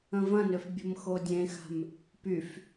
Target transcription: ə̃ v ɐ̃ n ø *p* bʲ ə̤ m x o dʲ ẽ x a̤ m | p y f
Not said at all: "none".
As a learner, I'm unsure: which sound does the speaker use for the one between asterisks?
f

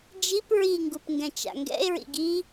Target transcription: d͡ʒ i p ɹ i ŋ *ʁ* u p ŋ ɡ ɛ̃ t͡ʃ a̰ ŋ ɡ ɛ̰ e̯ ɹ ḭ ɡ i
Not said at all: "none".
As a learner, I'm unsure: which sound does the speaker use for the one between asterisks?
ɡ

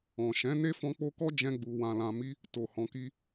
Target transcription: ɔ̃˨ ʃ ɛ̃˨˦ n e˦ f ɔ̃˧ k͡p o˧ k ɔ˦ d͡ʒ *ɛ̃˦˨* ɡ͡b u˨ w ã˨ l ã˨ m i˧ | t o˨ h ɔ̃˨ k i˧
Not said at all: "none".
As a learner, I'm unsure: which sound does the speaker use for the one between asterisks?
ɛ̃˧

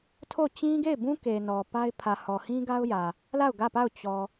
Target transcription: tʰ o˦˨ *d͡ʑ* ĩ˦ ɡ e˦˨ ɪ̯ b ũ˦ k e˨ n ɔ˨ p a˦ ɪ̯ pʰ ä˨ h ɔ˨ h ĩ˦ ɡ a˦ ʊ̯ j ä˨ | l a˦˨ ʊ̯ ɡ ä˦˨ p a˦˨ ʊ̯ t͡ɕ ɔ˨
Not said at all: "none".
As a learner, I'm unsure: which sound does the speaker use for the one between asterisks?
t͡ɕ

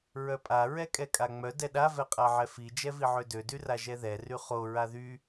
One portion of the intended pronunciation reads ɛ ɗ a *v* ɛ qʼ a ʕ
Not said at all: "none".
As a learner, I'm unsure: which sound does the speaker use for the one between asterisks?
v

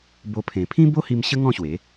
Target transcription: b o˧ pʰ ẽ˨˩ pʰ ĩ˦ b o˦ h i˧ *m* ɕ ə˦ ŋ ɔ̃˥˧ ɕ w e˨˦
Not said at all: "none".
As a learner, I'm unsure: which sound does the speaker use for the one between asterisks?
m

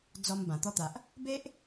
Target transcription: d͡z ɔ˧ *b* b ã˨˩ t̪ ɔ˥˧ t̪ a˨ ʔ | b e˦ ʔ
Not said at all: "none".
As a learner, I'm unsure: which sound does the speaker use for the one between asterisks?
m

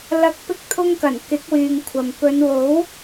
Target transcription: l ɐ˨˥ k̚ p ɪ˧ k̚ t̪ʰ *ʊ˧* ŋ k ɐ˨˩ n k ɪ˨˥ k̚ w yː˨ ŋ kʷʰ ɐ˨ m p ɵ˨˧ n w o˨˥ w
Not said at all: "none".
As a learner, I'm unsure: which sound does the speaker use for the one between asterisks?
ʊ˧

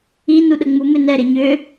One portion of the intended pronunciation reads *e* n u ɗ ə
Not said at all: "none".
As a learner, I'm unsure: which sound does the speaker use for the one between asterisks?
i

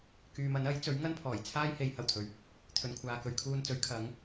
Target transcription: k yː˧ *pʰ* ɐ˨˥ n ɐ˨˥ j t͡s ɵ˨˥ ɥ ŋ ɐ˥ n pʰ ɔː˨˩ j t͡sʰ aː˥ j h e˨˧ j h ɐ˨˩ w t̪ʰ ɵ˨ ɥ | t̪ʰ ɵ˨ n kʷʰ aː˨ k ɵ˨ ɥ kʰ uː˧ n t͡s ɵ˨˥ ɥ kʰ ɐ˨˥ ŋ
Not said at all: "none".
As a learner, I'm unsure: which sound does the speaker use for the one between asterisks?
m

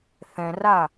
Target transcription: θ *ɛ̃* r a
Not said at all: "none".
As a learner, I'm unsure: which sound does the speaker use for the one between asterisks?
ɛ̃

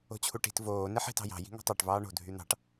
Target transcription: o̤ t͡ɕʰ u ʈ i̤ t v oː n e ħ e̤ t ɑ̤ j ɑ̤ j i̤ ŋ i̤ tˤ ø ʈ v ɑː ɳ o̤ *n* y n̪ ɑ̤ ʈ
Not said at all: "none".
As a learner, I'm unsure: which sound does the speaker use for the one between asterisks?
dʱ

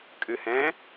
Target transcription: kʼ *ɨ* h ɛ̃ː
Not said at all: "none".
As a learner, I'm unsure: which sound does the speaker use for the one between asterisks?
ɨ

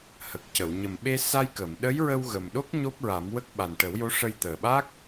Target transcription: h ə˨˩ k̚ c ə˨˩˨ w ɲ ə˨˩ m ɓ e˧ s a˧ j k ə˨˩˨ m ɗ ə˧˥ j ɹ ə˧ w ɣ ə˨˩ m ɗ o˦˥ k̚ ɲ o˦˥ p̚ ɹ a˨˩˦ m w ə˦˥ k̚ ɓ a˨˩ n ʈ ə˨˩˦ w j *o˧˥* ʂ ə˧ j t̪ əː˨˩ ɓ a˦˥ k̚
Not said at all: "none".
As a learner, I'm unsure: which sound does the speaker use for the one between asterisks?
o˧˥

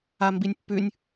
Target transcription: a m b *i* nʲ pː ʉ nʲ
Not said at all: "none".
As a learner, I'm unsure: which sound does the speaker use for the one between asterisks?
i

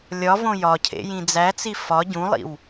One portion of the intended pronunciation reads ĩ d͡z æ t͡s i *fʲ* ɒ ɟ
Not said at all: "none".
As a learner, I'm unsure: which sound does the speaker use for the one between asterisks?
f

